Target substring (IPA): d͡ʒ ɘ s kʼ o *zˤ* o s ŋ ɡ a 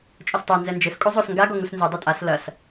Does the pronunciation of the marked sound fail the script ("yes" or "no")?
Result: no